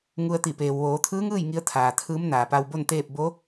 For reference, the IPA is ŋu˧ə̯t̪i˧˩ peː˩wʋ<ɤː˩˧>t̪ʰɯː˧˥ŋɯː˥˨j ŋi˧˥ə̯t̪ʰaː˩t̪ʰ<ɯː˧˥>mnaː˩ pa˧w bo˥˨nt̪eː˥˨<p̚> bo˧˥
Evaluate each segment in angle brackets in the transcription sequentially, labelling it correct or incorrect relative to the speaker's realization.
incorrect: oː˩˧, correct, correct

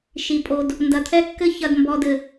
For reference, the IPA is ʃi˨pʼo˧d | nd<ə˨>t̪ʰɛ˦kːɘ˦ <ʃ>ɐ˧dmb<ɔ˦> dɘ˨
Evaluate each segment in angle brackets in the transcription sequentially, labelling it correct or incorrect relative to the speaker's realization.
incorrect: ɐ˨, incorrect: ç, incorrect: ɔ˧

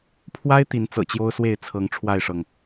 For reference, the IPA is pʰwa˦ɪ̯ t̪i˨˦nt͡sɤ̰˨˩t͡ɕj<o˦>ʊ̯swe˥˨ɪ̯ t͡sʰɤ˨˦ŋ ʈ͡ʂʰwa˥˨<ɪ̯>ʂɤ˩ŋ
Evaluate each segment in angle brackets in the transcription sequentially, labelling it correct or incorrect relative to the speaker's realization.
correct, correct

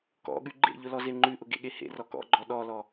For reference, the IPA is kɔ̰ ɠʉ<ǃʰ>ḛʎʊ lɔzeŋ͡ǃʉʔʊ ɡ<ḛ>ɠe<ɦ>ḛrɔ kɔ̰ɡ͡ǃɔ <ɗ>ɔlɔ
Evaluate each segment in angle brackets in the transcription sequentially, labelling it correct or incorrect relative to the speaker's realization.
incorrect: ɡ͡ǃ, correct, incorrect: h, correct

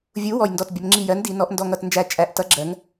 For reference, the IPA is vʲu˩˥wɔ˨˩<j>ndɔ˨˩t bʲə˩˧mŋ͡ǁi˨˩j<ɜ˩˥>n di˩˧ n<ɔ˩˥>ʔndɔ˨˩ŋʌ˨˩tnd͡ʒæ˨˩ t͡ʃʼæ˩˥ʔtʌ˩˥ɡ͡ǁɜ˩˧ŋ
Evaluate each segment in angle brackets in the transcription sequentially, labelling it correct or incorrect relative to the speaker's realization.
correct, correct, incorrect: ɔ˩˧

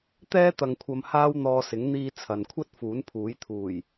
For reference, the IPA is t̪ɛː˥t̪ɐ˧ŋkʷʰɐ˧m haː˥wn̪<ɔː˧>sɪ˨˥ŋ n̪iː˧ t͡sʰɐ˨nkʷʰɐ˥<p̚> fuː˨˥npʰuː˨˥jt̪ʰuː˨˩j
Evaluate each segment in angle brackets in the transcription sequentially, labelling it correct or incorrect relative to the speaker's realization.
correct, incorrect: t̚

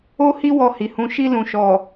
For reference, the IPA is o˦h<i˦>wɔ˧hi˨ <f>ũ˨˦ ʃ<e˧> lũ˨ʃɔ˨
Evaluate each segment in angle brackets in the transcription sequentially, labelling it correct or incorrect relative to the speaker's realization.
correct, incorrect: h, incorrect: i˧

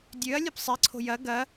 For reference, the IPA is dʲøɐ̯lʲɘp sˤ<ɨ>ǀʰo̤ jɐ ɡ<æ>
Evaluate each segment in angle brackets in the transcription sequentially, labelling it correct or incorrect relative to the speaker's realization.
incorrect: i, incorrect: ɐ

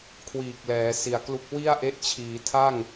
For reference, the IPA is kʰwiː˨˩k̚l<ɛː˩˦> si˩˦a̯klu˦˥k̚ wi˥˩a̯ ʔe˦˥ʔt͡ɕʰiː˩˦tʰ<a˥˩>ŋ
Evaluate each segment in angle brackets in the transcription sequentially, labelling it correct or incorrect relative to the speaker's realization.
correct, correct

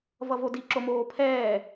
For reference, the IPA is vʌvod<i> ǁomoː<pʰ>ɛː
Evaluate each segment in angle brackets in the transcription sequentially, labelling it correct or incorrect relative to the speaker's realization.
correct, correct

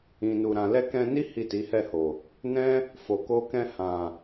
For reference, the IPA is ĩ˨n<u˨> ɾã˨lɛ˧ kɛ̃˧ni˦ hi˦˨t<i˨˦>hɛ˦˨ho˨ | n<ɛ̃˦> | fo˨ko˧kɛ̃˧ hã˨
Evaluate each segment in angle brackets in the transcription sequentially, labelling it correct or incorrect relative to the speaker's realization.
correct, correct, correct

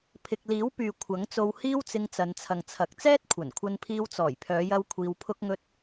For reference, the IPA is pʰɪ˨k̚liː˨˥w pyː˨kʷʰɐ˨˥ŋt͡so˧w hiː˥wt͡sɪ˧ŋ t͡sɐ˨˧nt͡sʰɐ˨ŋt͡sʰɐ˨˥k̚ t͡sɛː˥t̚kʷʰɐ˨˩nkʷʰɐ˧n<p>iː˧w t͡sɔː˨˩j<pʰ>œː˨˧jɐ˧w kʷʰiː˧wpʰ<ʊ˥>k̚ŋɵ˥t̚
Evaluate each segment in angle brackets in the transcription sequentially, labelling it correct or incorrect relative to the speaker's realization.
incorrect: pʰ, correct, correct

